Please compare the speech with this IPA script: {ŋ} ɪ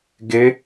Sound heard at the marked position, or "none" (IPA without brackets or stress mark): ɡ